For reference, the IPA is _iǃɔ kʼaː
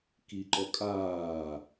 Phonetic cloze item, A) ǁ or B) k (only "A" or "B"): B